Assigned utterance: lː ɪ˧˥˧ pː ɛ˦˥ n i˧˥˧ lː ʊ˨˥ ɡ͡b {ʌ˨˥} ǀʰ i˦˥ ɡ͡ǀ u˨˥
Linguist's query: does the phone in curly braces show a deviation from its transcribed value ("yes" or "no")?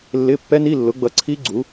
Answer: no